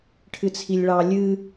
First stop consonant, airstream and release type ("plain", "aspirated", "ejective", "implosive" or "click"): aspirated